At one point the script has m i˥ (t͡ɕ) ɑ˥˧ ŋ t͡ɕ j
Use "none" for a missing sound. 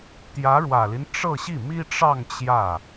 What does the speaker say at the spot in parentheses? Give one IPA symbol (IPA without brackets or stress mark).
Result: ʈ͡ʂ